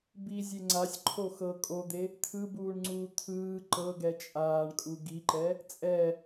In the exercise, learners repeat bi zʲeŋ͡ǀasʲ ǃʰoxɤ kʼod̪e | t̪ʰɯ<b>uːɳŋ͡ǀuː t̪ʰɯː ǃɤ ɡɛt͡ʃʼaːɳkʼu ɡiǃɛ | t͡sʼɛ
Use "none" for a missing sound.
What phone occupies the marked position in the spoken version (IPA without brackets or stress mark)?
b